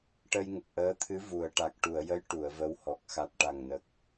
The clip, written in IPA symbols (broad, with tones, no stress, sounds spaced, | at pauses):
ʈ ə˧ j ŋ ə˨˩ k̚ ʔ əː˧˥ t̪ʰ ɨ˧˥ v u˨˩˨ ə̯ ʈ a˨˩ k̚ ʈ u˨˩˨ ə̯ j ə˧˥ j ʈ u˨˩˨ ə̯ v ə˧˥ w h ɔ˨˩ k̚ x a˨˩ t̚ ʈ a˨˩ ŋ n ə˨˩ k̚